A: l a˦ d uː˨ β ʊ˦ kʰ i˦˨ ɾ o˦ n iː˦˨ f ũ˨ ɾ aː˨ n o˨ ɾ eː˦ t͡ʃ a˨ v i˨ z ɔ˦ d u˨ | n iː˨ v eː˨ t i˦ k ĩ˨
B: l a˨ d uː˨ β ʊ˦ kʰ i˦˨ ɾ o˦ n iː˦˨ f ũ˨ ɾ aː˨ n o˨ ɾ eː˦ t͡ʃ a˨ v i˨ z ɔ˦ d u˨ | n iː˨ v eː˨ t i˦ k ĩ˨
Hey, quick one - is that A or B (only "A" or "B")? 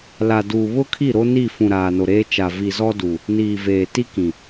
B